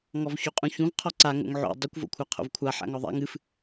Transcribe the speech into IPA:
ŋ ɔ v ç o qʼ ũ ç ũ v qʰ ɔ ǀ a ŋ o̰ ŋ ʕ o̰ dˤ ɨ kʷ v o̰ kʷʰ a qʰ o̰ v kʷʰ a ħ a̰ ŋ ɔ ðˤ a̰ ŋ ɨ f

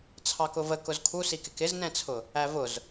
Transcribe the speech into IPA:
t͡sʰ ɑ k ʊ v ə k ʊ z kʰ u s i k ɪ k ɪ z n ɛ̃ t͡sʰ ʊ | æ v ʊ z

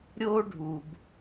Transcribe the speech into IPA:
ɾʲ o˥ ɖʱ u˩ b

